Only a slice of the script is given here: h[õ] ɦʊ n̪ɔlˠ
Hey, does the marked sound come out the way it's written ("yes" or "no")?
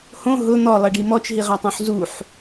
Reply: yes